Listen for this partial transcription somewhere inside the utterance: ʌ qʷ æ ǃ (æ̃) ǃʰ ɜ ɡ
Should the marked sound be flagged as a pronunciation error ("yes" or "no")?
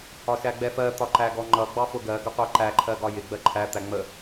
yes